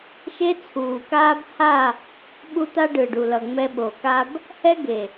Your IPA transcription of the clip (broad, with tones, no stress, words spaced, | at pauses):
ʃe˦t͡sʰuː˨kaː˦b ha˦˨ | ɓu˦t̪a˦ɖɯː˨ɖu˨ lʌ˨ŋ͡mɛ˧ɓo˨ka˦b | hɛ˦ ɡe˨